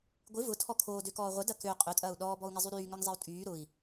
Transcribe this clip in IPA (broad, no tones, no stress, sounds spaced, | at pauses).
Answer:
ɡʷ ɪ v ʊ tʰ ɔ kʰ oː d ø k ɔː ʁʷ ə d ɐ k ø qʼ ø tʼ ɐː u̯ ɗ ɔː b ɔ u̯ ŋ ɪ zˤ y ɾ yː ŋ œ ŋ zˤ e u̯ tʼ yː ɾ ʊ i̯